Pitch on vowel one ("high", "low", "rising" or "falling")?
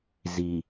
low